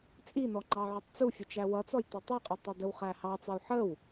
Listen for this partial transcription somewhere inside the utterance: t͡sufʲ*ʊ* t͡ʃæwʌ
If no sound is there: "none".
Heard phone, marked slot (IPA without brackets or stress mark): ʊ